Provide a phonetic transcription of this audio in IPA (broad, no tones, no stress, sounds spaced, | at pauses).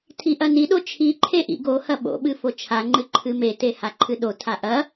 tʰ i ʔ ɐ n i ɗ o t͡ʃʰ i ǃʰ e ʔ ḭ ɡ o h ɐ ɓ o̰ ɓ ɨ f o t͡ʃʰ a ŋ͡ǃ ɨ ǃʰ ɨ m e t e h a ǃʰ ɨ ɗ o tʰ a ʔ ɐ